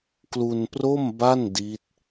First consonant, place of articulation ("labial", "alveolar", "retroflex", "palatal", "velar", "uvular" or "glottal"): velar